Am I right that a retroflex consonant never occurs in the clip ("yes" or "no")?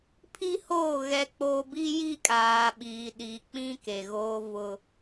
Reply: yes